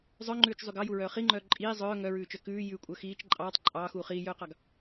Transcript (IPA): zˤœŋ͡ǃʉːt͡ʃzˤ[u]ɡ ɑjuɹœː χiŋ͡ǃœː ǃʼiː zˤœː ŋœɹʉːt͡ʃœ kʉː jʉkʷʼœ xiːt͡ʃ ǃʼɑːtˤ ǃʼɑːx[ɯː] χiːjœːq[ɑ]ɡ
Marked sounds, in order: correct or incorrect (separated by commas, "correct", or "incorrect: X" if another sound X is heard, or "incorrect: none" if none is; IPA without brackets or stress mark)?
incorrect: y, incorrect: uː, correct